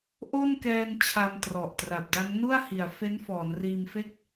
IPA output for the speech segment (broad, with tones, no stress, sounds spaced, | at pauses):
ʔ o˥˩ n k ɛː˧ n t͡ɕʰ a˧ m t r ɔ˨˩ ʔ t r a˨˩ p̚ d a˦˥ ŋ n u˥˩ a̯ h i˨˩ a̯ f e˦˥ n f ɔː˩˦ n r iː˧ m f e˥˩ k̚